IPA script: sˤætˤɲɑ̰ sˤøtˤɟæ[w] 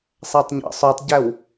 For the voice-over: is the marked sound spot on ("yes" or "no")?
yes